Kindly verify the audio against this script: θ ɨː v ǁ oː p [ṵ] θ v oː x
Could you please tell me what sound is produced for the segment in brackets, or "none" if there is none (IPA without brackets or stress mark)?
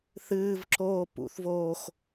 ṵ